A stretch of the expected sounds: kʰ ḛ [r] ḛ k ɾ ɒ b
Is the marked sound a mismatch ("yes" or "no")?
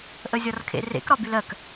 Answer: no